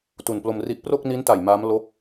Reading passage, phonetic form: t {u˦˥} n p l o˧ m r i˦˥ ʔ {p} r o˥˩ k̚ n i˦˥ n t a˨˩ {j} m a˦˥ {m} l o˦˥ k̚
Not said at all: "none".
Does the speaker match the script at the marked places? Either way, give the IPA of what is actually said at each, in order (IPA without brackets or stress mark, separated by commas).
u˨˩, p, j, m